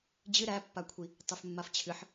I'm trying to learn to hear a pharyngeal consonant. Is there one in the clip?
yes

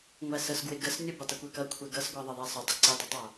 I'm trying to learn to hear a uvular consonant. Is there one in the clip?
no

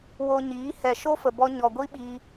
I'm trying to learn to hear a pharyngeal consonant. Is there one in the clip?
no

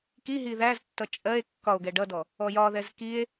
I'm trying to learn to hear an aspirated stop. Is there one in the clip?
no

